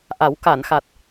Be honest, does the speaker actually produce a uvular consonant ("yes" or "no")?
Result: no